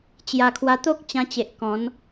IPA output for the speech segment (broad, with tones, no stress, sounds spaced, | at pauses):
t͡ɕ j a˨˩ kʰ w a˧ t̪ o˦ k̚ t͡ɕ ã˧ t͡ɕ e˨ ʔ k ɔ̃˨˦ n